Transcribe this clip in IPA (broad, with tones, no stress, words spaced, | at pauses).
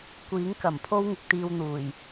kʷiː˨˥ŋ kɐ˨˩m pʰo˥wŋɪ˨k̚t̪iː˧w n̪uː˨˩j